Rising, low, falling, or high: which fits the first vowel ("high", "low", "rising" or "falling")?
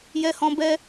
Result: low